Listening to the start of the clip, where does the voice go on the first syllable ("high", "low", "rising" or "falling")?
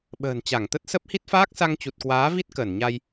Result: low